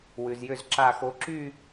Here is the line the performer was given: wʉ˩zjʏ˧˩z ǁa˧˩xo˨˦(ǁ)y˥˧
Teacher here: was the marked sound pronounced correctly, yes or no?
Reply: yes